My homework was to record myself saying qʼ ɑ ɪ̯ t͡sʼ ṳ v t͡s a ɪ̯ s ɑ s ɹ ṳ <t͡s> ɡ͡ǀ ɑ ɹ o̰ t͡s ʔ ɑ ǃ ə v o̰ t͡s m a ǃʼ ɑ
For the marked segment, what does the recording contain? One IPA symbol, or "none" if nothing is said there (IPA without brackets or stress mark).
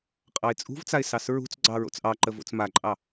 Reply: t͡s